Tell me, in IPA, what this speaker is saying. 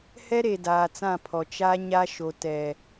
h ɛ˦ ɾ e˨ d aː˨ t͡s ã˦˨ pʰ ɔ˨ t͡ʃ a˦ ɲ a˦ ʃ o˨ t ɛ˨

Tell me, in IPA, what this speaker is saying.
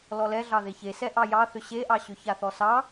l ɔ l ɛ ɮ ɑ ð e ç e s ɛ ʔ ɑ j ɑ θ ʏ ɕ e ʔ ɑ ɕ ʏ ç a θ ɔ s ɑ

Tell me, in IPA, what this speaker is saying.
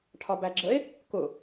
ʈʰ ɒ b æ ɡ͡ǁ ə e̯ | k ʊ

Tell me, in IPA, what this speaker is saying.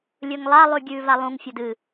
lʲ ɵ ŋ lˠ a lˠ ʉ ɡʲ ʉː v a lˠ ũ ŋ fʲ ɐ d ɨ

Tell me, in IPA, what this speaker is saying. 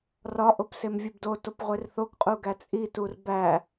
r ɒ ʔ o p s e m vʲ u b d o t o p ʁʷ e r θ o ɡ qʼ u ɡ æ t͡sʼ i t u r b æ

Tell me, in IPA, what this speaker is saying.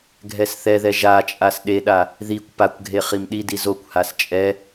ɡʱ ɛ s θ ɛ ð ɛ ʒ a t͡ʃʼ a s ɗ e ɗ a | ð i kʷ p a kʷ ɡʱ e χ i m ɗ i d i z o kʷ h a s t͡ʃʼ ɛ

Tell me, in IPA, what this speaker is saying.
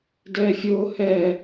d ɛː fʲ ʊː h ɛː

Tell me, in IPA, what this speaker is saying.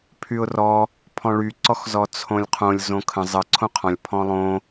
pʰ y ʊ̯ r ɔ | pʰ ɔ̃ ɭ y ǀ ɔ x z ɔ t͡sʰ õ lʲ qʰ õ lʲ z õ kʰ ə̃ zˤ ə ǀʰ õ qʰ ɔ̃ lʲ pʰ ɔ̃ lˠ õ

